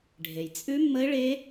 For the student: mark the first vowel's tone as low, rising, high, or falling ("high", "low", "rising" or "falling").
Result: low